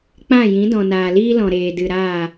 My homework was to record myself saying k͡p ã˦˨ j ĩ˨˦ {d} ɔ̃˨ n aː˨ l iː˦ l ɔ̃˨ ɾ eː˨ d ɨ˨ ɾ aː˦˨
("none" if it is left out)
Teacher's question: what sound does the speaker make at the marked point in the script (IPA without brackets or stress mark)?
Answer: d